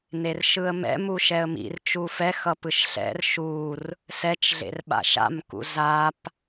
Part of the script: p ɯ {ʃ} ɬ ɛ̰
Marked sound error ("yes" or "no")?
no